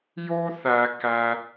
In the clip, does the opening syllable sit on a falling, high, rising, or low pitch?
high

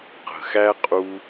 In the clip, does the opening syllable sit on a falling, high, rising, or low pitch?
low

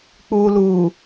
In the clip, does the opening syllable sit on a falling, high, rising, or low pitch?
low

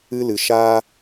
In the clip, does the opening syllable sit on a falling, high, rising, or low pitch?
high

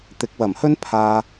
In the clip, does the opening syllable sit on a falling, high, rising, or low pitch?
rising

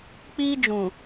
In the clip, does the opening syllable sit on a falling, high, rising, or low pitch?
high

